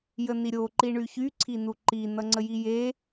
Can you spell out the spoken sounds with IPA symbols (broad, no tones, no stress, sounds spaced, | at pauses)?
j ə n i ɾʲ o ǃ i ɳ y ç y ǀʰ i n u ǃ i n ʌ ŋ͡ǀ ə j i j e